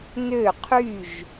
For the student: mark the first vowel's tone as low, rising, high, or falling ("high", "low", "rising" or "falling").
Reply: falling